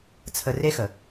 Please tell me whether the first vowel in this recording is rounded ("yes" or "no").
no